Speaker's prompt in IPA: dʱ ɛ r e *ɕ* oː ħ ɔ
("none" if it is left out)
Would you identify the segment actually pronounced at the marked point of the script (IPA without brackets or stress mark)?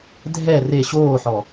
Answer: ɕ